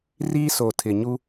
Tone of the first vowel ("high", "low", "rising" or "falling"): high